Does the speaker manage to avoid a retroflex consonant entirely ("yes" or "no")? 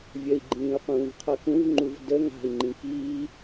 yes